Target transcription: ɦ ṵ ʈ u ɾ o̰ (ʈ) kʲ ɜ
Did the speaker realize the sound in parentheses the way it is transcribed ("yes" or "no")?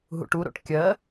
yes